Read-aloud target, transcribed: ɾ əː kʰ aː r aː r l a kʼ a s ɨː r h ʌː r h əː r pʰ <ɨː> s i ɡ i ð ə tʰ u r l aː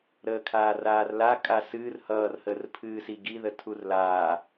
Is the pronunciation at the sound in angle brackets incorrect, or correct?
correct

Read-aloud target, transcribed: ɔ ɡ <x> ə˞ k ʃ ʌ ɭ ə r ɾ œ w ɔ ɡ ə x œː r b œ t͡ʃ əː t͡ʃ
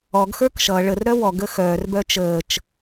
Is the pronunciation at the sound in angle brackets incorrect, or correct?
correct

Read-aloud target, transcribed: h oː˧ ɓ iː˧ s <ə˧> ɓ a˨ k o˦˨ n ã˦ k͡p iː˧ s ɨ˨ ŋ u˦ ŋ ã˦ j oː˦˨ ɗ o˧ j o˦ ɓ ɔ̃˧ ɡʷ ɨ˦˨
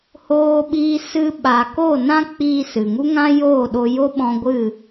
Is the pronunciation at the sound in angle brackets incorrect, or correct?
incorrect: ɨ˧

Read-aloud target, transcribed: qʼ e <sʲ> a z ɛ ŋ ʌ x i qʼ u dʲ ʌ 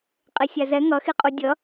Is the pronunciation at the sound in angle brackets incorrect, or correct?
correct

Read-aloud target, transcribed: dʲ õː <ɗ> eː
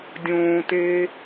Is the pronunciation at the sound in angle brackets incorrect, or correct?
incorrect: t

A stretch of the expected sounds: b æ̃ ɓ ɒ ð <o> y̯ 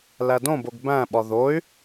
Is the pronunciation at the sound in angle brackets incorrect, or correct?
correct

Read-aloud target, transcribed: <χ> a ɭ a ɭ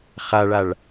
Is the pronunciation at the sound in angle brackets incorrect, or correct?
correct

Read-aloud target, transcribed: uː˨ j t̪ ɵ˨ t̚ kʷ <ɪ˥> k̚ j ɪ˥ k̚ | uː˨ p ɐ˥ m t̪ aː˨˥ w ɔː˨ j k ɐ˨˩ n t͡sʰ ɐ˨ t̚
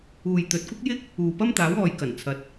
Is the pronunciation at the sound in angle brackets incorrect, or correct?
correct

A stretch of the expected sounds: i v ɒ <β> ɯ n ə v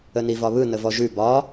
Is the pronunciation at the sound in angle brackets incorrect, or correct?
correct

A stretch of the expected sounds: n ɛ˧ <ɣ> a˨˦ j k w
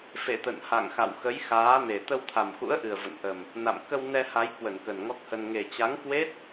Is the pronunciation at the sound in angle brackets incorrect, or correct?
incorrect: h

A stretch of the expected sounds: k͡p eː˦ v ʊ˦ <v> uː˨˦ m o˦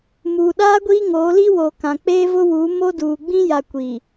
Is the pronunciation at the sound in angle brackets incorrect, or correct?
incorrect: w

